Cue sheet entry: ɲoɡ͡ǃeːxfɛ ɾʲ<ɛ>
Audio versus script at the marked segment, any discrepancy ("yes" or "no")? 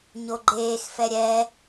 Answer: no